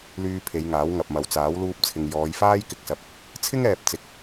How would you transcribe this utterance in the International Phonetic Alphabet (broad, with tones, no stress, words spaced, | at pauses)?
lyː˧ pʰe˨˧jŋaː˨˥w ŋɐ˨p̚mɐ˨w t͡saː˨˥wluː˧p̚t͡sʰɪ˨ŋ jɔː˨˧jfaː˥j kɪ˧k̚sɐ˧p̚ | t͡sʰɪ˥ŋɛː˨p̚ t͡sɪ˨˥k̚